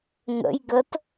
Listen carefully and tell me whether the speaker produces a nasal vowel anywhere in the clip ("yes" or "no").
no